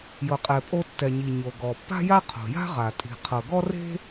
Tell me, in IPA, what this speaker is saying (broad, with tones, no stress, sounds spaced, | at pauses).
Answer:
j ɤ˩ qʼ ɛ˩ pʼ o˧ tː ɛ˩ ɲ i˩ ɲ o˩ ɡ ɔ˩ pː a̤˥ j a˥ qʰ o̤˩ j a̤˥ ʁ a˩ tʼ i̤˩ qʰ ɤ˩ ɡ ɔ˥ r e̤˥